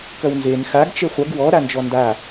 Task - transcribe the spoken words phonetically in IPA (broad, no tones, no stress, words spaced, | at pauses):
kɐwnzen xaɡ t͡ʃeχʷɐɡ wɔ ɾand͡ʒɔnda